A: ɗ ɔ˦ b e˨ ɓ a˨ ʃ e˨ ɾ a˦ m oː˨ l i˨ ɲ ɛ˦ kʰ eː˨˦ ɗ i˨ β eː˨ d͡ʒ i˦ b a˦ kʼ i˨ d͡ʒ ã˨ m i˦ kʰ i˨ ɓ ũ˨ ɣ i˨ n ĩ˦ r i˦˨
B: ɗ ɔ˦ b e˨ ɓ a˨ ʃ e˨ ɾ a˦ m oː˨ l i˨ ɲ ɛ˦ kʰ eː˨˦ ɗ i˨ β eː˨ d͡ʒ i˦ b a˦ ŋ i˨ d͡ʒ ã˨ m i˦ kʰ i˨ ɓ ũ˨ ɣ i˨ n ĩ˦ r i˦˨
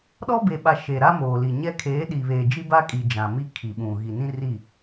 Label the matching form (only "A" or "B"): A